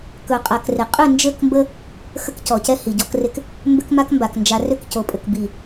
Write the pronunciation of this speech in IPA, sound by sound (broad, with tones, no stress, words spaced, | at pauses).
kɵ˨ qʼa˨krɪ˨ qʼʏ˦˨nd͡ʒɘ˦˨kmbə˦ | xə˦kcɔ˨cɛ˦ hi˨ɟɔ˦krɪ˦k | mbʏ˦kma˦kmba˨k nd͡ʒa˨rʏ˦˨k co˨pʼɘ˨k bi˦˨